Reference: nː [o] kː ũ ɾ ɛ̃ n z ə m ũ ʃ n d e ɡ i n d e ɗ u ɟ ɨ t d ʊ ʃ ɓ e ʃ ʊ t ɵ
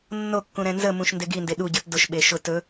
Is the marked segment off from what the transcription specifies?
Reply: no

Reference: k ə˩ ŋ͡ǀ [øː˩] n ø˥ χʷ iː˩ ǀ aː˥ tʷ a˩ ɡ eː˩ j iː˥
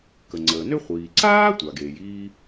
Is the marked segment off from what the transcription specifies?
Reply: yes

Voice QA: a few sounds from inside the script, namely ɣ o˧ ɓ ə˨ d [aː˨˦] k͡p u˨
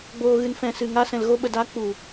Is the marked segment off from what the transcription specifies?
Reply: no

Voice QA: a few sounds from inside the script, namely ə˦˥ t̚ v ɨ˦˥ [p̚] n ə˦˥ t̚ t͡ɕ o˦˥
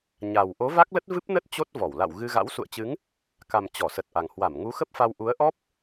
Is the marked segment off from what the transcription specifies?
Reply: no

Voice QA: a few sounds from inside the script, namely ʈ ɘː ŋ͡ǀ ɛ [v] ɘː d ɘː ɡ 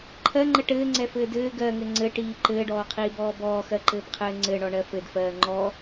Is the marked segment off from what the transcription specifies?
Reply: yes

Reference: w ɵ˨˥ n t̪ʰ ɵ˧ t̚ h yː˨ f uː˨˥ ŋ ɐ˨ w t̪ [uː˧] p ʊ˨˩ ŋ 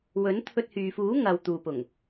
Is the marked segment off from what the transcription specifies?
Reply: yes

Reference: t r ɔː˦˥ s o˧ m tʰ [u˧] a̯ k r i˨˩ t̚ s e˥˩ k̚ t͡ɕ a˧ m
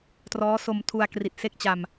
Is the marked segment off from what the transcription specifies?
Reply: no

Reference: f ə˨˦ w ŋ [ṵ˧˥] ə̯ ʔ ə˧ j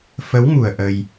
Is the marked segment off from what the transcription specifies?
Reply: yes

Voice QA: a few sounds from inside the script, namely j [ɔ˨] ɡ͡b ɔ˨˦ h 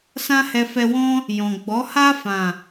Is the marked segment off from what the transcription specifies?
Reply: yes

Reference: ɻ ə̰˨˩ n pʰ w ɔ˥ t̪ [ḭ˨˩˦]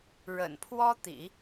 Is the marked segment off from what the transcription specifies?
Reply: no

